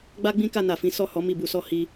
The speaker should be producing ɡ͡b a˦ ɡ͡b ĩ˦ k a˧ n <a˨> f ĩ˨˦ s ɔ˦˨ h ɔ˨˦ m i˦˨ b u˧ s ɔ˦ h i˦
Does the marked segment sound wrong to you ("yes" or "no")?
no